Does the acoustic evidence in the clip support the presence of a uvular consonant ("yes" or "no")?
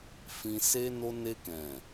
no